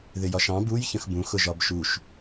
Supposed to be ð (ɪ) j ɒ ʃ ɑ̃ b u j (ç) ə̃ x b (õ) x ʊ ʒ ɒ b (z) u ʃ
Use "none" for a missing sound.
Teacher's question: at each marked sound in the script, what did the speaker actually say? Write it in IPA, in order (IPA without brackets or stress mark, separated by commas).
ɪ, ç, ũ, ʃ